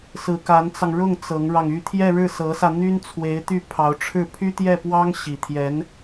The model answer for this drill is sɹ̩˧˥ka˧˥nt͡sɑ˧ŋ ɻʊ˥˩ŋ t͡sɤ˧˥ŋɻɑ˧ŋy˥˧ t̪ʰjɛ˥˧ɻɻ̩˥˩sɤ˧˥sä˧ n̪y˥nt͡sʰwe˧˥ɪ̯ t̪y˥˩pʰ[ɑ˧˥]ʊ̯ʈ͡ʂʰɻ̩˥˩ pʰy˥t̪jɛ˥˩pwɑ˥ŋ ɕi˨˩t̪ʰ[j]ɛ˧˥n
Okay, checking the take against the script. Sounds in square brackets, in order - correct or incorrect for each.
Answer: correct, correct

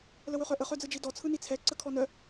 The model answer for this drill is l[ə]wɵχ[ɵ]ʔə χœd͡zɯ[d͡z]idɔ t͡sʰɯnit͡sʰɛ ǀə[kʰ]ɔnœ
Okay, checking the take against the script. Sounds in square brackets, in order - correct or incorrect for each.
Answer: correct, incorrect, incorrect, correct

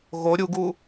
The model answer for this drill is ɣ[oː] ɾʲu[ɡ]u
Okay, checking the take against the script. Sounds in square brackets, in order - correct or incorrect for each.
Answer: incorrect, correct

